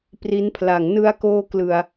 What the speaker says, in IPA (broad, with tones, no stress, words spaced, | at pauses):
pri˦˥npʰla˨˩ŋ nɯ˧a̯koː˧ klɯ˨˩a̯